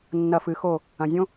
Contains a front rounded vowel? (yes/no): no